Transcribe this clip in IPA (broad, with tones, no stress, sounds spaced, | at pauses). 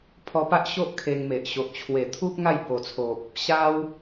pʰ ɔ˧ p a˦ ʔ ɕ o˦ ʔ kʰ e˧ ŋ m e˨ ʔ ɕ o˨ ʔ t͡ɕʰ w e˨˩ t̪ʰ u˦ p̚ ŋ a˥˧ j b o˨˩ t͡sʰ o˨ p̚ | ɕ a˦ w